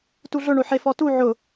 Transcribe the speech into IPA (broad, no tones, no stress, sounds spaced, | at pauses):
t u ɮ ʊ ɳ o ħ e f ɔ t u ʕ ʊ